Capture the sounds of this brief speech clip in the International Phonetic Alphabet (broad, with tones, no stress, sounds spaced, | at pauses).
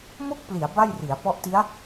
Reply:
m o˥˩ k̚ p l i˩˦ a̯ b a˥˩ j r i˩˦ a̯ p ɔ˦˥ ʔ t i˦˥ a̯